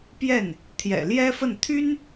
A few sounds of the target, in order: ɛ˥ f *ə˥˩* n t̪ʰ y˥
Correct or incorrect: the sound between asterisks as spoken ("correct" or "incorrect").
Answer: correct